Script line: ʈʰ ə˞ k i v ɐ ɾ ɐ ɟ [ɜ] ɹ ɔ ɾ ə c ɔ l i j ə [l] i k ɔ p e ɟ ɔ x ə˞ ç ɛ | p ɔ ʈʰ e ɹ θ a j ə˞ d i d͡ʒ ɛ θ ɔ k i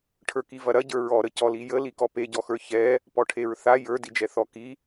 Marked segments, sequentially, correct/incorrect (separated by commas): incorrect, correct